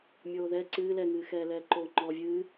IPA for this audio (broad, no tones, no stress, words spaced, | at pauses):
mʲoːðɛ ǀɨː lɛŋɨːxɛːlɛː ǃoːŋ͡ǃɔːvʲɨː